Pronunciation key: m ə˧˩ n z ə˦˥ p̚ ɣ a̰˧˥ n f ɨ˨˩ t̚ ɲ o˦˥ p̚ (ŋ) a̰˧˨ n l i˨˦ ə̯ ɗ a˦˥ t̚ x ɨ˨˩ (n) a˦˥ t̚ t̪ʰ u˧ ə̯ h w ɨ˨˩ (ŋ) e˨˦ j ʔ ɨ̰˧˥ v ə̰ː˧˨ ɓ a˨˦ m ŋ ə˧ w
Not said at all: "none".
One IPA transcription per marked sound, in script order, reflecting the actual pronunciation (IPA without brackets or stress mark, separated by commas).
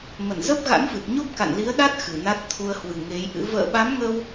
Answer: k, n, ŋ